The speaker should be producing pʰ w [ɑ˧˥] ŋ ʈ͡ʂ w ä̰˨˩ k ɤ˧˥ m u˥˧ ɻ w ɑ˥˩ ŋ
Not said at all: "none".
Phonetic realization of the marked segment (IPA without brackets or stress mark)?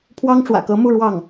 ɑ˥